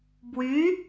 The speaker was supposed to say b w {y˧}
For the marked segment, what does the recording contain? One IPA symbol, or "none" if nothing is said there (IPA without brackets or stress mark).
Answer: y˧˥